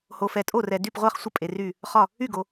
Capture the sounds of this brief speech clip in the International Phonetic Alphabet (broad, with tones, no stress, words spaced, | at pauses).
ho˨fɛ˨tʼo˥˩rɛ˨ dy˥˩pʁʷɛ˥˩χsʷə˥˩ pʼe˨ry˥˩ | χɒ˥˩ | y˥˩ɡo˨